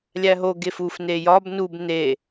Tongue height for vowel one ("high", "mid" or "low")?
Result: low